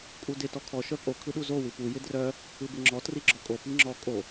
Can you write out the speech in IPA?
kʼ u d ɪ t ɔ kʰ ɔ ʃ œ pʼ o kʰ ɯ ɗ u z o w ɯ p u j ɪ d r œ | ɯ b ɪ ŋ͡ǁ ɔ t r i ɡ͡ǁ ɔ kʼ o p i ŋ͡ǁ ɔ kʼ o

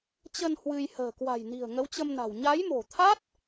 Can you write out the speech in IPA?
t͡ɕ ə˧ n h w ɨ˧ j h ə̤ː˨˩ k w a̤˨˩ j n i̤˨˩ ə̯ ŋ ə˨˦ w t͡ɕ ə˧ m n a̤˨˩ w ɲ a˨˦ j m o̤˨˩ t̪ʰ a˦˥ t̚

